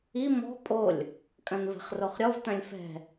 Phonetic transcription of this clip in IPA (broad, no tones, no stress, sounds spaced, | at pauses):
i m ɔ̤ pʼ o lʲ | kʼ ɐ̃ n v ɛ̤ χ r o χ ɾʲ ɔ v t ɐ̃ lʲ f ɛ̤